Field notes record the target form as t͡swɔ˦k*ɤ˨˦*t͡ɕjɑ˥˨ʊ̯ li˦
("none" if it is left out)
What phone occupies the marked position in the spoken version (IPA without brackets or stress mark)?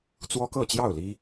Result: ɤ˥˨